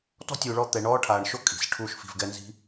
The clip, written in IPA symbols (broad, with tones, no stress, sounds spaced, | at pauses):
t ɔ̤˥ tʲ u˨ ɭ ɔ˦ t̪ ɛ˨ ɳ ɔː˥ ʈʰ aː˨ ɳ ʃ o˥ kʼ i̤˩ s ʈʰ uː˦ ʃ f i̤˨ v ɡ ɛ˦ n z i̤˦